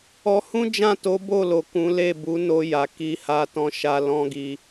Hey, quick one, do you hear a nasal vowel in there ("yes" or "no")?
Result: yes